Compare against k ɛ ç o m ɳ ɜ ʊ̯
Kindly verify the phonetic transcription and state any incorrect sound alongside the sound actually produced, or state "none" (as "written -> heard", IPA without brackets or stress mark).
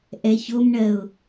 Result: k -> ʔ